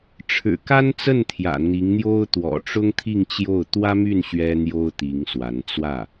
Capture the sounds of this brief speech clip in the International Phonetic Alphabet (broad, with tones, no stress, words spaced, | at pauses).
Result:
ʈ͡ʂʰɻ̩˨˩ka˥nt͡sə˥˩n t̪ʰjä̰˨˩n̪i˧˥ŋn̪jo˥ʊ̯ t̪wɔ̰˨˩ʈ͡ʂʊ˥ŋ t̪ʰi˥˧ŋt͡ɕjo˥˩ʊ̯ t̪wä˥my˥˩n ɕɥɛ˥n̪jo˥ʊ̯t̪i˧˥ŋswa˧˥n t͡swä˥˩